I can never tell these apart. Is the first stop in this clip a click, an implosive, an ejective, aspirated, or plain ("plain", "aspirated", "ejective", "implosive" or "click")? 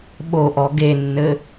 implosive